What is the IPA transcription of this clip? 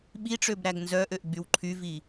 ɓiʈ͡ʂøb ɾæɡnzœʔøʔ ɡ͡bywǃʰyvi

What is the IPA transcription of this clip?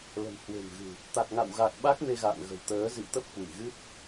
lə̤˨˩m hwe̤˨˩mɣɨ̤˨˩ | t̪a˨˩k̚ŋa̰˧˨wɣa˨˩k̚ ɓa˦˥k̚ me˧ɣa̰ː˧˨n ɣə̤˨˩wt̪əː˨˦ zḭ˧˨wt̪ə˦˥p̚hwi˧˩ ɣɨ˦˥p̚

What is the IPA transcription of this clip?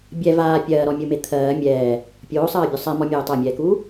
bʲɛ vaː pʲɜːɾɔmʲume t̪ʰɜː mʲɛː | pʲoːsˤɜːbʲo sˤɛmɔmʲeː tˤamʲɛːkuː

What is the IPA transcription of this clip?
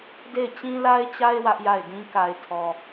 de˦˨ɪ̯t͡ɕĩ˦la˦ɪ̯t͡ɕa˦ɪ̯ wä˦ʔja˦˨ɪ̯dĩ˦ ka˨ɪ̯tʰɔ˨

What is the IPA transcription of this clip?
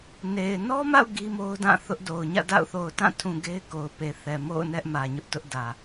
ne˨ɪ̯ nɔ˦ma̰˦˨ʊ̯ ɡi˦mo˦ʊ̯dã˦˨ θʊ˦ʔdo˨ʊ̯ ɲä̰˦˨da̰˦˨ʊ̯ θo˨ʊ̯tã˦˨tʰũ˨ ɡe˦ɪ̯ko˨ʊ̯pe˨θɛ˨ mo̰˦˨ʊ̯nɛ˦ʔ mä˨ɲʊ˦ʔtʊ˦ʔ dä˨

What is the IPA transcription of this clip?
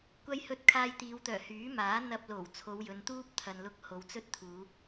kʷɐ˥j hɵ˧t̚ kʰaː˧jt̪iː˨˧wt̪œː˨˩ hyː˨˥maː˨˥ n̪ɐ˧p̚lo˨˩w t͡sʰo˨˧wjɵ˨˧nt̪uː˥p̚ t̪ʰɐ˨nlʊ˧k̚ ho˨wt͡sɵ˥t̚t̪ʰuː˨˧

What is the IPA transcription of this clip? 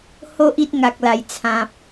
ho˦ʔ i˦t̚ŋa˨k̚la˨˩j t͡sʰã˨p̚

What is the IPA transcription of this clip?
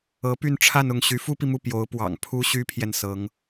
ɤ˧˥py˥˧nʈ͡ʂʰa˥˧nʊ˥˩ŋ ɕy˧˥fu˥pi˨mu˥˩ pjo˧˥ʊ̯pwɑ̰˨˩ŋ pʰu˥ɕy˥pʰjɛ˨n sɤ˧˥ŋ

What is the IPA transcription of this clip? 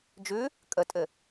d͡ʒʉ | kʼətʼɘ

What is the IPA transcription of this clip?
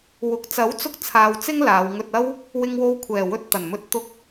wʊ˨k̚ t͡sɐ˨˥wt͡sʊ˧k̚t͡sʰaː˨w t͡sɪ˥ŋlaː˨˧wŋɵ˧t̚ɐ˥w | wɪ˧ŋwo˧wkʷʰɛː˨˩ wɵ˧t̚t̪ɐ˨˩nmɵ˧t̚ t̪ʊ˧k̚

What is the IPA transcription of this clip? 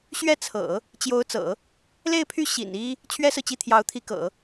ɕɥɛ˥˩t͡sʰɤ̰˨˩˦ | t͡ɕjo˧˥ʊ̯t͡sɤ̰˨˩˦ | le˥˧ɪ̯pʰy˥˩ ɕḭ˨˩n i˥ | t͡ɕʰɥɛ˥sɹ̩˨t͡ɕi˥˩ t̪ʰjɑ˧˥ʊ̯t̪ʰi˧˥kɤ̰˨˩˦

